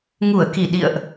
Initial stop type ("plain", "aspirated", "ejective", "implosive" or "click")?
plain